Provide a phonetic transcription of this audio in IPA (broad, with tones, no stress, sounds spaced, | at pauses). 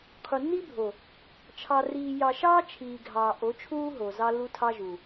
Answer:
qʰ u˨ nː i˦ bʱ o˨ | t͡ʃʰ ɑ˨ r iː˨ j ɑ˨ ʃ ɑː˦ t͡ʃʰ iː˨ ɡʱ ɑː˨ ʔ o˨˦ t͡ʃʰ uː˦ ɦ o˨ z ɑ˦ lː u˦ tʰ ɑ˦ ʒ u˨